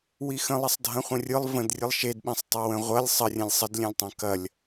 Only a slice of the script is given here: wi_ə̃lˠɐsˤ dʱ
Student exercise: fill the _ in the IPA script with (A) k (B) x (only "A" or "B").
B